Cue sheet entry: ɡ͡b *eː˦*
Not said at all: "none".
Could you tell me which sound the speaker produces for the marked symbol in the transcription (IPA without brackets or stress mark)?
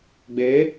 eː˨˦